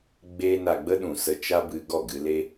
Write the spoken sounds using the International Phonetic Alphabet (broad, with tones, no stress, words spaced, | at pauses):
ɡ͡be˧ na˨ɡ͡bə˧ ɗũ˨sə˧ t͡ʃa˦bɨ˧ ɡɔ˦˨ɡɨ˧le˦